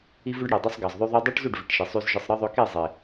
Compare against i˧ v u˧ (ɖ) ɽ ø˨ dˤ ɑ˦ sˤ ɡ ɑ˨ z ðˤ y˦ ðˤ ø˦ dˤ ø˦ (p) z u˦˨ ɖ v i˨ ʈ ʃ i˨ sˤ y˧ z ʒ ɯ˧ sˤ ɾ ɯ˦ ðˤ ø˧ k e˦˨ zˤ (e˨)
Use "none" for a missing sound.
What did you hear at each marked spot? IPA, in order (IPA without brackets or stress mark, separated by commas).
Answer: ɖ, ʈ, e˨